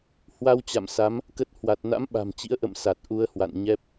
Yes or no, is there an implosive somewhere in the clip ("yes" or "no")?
yes